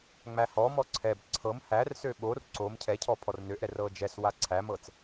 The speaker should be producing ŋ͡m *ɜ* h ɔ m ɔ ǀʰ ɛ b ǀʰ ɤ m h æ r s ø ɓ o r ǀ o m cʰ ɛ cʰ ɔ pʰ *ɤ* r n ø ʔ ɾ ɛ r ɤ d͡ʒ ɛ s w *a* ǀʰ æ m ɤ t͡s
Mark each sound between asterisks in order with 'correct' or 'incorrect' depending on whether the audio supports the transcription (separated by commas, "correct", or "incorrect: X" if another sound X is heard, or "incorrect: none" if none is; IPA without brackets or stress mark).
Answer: incorrect: æ, incorrect: ɔ, correct